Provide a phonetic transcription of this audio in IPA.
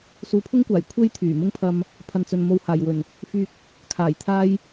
suː˨˧pʰʊ˥ŋkʷaː˨˩j kʷʰe˥jt̪ʰyː˨˩ mʊ˥ŋpʰɐ˧m | pʰɐ˨nt͡sɵ˨nmo˧w haː˨˩jwɵ˨˩n | fyː˧k̚ | kʰaː˨˩jt̪ʰaː˥j

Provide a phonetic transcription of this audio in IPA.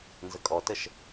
nzəkʼɔtəʃ

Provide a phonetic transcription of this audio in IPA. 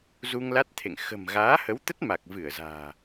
zu˧ŋla˦˥t̚t̪ʰḛ˧˨ŋ xə̤˨˩m ɣaː˨˦hə˨˦wt̪ə˦˥t̚ ma˨˩k̚vɨ˧˩ə̯za̤ː˨˩

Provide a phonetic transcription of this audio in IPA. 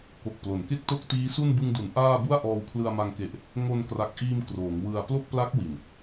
ko˨˩k̚plo˩˦nke˥˩k̚to˥˩k̚ tiː˦˥su˥˩n bɯ˧ŋdu˩˦n ʔaː˥˩ bu˥˩a̯ ʔɔː˧wkʰlɯ˧a̯ma˧ŋke˨˩ʔ | ŋo˧nkra˨˩k̚ʔiː˧m kroː˩˦ŋwɯ˧a̯ plo˥˩k̚pla˦˥k̚ wi˨˩n

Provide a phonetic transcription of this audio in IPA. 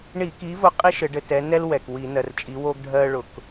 ɳi˧˩˧ki˨˦ vʊ˧˥˧qʼi˥ ʃɘ˨˦ɖɘ˧˥˧ tɛ˨˦ nɛ˥lwɛ˩k wi˧˩˧nɜ˩rt͡ʃʼi˨˦ wo˥ɡ ɖʱɜ˥ɭʊ˧˩˧k

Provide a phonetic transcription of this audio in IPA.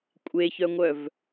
kʷʼeçœŋʷœv

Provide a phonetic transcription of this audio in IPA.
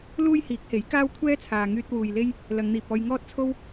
luː˥jhiː˨˥k̚he˨˥j kaː˥wkʷʰɛː˥t͡sʰaː˨ŋyː˧t̚ wuː˨jle˥j | lɐ˨˧ŋn̪iː˨p̚ɔː˧j ŋɔː˥t̚t͡sʰo˥w

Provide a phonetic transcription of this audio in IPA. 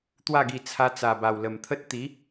t̪wa˥˧ɡi˧ t͡sʰa˧t͡sa˨˩ba˨˩w lə˨˩mt̪ʰə˦t̚ t̪i˨˦

